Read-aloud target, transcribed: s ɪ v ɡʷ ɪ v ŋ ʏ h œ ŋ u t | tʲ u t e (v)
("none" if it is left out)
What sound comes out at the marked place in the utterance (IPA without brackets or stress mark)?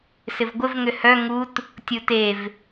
v